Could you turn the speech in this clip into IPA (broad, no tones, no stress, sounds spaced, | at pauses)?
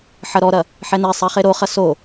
ħ ɐ ɾ ɔ ɾ ɐ | ħ ɛ n e sˤ ɛ χ e ɾ o χ ɐ s o